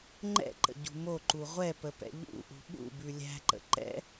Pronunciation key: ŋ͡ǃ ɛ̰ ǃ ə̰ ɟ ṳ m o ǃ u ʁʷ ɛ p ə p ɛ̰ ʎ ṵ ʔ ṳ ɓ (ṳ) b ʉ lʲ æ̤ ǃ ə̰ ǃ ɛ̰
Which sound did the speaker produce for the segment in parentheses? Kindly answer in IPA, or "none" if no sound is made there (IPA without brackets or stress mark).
ṵ